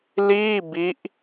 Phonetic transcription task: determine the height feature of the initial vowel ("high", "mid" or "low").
high